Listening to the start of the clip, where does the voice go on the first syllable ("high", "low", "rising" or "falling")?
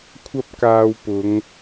high